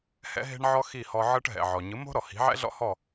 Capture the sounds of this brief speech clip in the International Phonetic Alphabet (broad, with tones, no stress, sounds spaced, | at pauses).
h ɛ̰˥ ɦ e̤˥ ɳ ʕ ɔ˥ x i˥˩ h ɔ˧ ʕ ɤ˥ ʈ ɦ ɛ̰˩ ʕ ɔ˩ ɲ ɯ˩˥ m o̤˥ ɾ ɔ˩ h i̤˩˥ ʕ ɛ̰˥ ɮ ɔ̰˥ h ɔ˥˩